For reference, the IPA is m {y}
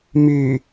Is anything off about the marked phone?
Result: no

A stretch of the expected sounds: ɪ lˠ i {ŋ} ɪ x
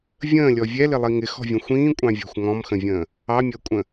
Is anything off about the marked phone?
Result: no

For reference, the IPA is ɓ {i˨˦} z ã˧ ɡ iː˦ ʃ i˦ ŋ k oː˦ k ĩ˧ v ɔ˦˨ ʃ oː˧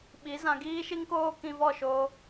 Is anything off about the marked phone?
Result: no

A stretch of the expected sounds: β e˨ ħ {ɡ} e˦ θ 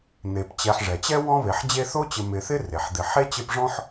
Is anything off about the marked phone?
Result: yes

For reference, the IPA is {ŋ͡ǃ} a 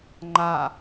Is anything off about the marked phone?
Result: no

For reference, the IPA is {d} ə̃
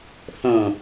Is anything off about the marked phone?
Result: yes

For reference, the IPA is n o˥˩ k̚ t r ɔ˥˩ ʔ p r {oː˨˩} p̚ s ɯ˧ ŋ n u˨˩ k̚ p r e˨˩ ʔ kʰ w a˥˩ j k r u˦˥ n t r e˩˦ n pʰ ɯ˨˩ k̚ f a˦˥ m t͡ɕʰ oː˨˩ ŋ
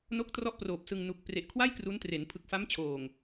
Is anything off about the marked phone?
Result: no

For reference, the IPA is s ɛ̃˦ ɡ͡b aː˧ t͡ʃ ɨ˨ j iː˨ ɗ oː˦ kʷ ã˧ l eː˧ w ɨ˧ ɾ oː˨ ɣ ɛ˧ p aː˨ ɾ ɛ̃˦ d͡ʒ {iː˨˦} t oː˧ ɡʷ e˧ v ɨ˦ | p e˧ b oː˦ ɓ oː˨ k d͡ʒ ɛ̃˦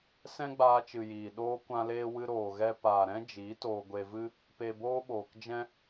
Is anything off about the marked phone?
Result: no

